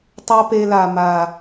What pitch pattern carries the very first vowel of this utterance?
high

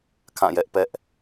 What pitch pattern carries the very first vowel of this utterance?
falling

